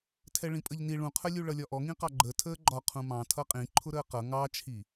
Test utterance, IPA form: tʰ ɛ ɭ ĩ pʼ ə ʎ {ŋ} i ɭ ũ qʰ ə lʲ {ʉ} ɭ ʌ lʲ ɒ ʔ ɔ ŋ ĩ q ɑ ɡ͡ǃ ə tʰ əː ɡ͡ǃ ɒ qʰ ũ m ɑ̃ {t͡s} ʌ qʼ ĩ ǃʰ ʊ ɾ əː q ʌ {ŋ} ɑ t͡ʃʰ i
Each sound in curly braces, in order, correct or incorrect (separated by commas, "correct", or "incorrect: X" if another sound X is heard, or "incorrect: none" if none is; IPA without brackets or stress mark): incorrect: n, incorrect: u, incorrect: tʰ, correct